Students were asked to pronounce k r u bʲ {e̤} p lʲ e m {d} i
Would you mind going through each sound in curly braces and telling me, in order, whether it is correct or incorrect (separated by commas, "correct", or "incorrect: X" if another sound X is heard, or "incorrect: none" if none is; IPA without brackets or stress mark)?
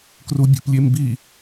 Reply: correct, incorrect: b